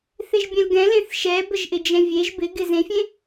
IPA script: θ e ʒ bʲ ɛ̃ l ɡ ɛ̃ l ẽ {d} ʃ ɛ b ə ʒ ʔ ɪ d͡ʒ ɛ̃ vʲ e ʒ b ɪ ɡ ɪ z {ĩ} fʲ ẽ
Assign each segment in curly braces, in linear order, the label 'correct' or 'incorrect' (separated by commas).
incorrect, incorrect